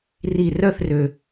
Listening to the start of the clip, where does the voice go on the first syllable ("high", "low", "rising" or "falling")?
falling